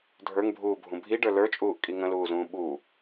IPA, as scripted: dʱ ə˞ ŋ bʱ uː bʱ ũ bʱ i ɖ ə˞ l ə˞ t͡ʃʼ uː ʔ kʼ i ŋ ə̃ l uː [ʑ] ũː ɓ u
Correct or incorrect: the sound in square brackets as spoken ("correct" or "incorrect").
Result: incorrect